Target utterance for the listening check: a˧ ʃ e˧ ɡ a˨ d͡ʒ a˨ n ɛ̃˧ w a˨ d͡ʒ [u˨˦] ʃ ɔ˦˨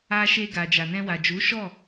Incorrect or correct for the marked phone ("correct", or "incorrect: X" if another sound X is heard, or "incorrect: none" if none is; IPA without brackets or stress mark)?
correct